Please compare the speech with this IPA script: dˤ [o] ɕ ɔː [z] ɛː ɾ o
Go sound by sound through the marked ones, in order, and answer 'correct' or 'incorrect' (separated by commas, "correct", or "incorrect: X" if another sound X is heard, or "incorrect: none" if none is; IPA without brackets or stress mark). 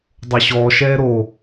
correct, incorrect: ʃ